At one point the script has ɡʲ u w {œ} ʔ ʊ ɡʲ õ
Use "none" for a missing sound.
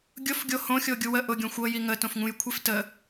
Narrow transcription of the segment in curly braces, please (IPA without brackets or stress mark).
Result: ə